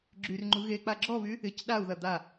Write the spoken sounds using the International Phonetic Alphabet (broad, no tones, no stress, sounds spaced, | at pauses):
ɡ͡ǁ y r ŋ͡ǃ u ɣ e k͡p a ɡ͡ǁ ɔ β y | ɪ c ɗ a u̯ ð ɐ d̪ a